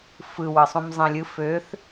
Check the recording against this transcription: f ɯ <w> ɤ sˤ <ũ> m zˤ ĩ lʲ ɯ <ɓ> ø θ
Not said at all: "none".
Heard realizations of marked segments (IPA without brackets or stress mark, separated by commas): w, ũ, f